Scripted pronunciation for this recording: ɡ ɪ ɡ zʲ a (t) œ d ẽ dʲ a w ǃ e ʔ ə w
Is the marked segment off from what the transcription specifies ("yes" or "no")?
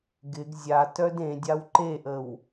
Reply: no